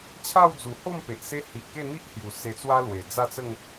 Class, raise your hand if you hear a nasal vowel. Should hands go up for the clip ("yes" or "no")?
no